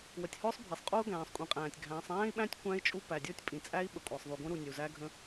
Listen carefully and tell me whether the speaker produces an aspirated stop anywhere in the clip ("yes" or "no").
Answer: no